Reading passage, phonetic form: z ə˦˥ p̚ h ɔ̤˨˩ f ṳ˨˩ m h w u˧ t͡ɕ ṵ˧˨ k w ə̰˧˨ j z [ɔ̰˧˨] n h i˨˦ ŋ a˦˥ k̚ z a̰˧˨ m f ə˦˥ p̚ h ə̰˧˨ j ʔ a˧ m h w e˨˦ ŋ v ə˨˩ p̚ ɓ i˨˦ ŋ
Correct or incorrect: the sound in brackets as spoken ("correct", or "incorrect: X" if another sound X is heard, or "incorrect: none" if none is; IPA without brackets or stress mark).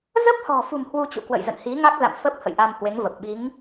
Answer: incorrect: ə̰˧˨